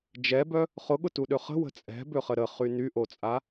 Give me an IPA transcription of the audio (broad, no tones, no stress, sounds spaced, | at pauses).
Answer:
d͡ʒ ɛ b œ | χ ʊ ɠ ʊ t u ɗ ø χ ə̤ w ə̤ t͡sʼ ɛ̤ b ø χ ə ɾ ə χ y n y ʔ o t͡sʼ a